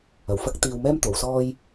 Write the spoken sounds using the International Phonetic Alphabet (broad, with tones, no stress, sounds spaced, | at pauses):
ɐ˨˩ w f ɐ˥ k̚ t̪ iː˧ w m ɛː˥ m t̪ o˨˧ w s ɔː˥ j